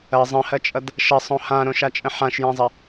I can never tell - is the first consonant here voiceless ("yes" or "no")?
no